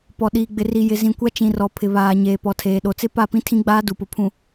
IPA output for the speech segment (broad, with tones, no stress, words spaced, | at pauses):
pɔ˨ɗiː˨ ɡ͡bɪ˨ri˨ jɪ˨zĩ˨kʷa˦ t͡ʃĩ˨rɔ˨ pʰɪ˨βaː˨ ɲeː˨pɔ˨tʰeː˨ ɗo˨t͡sɪ˦ pa˦˨pĩ˦tʰĩ˦ ɡ͡baː˦du˨pʊ˨pʰũ˨